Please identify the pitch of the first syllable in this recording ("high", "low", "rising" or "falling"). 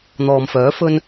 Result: low